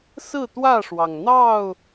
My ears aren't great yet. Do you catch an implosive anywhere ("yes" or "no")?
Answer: no